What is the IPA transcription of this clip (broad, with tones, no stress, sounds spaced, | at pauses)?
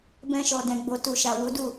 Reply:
b ɛ̃˧ ʃ ɔ˨ d ɛ̃˨ ɡ͡b o˨ t u˨ ʃ a˨ w u˨˦ d u˦˨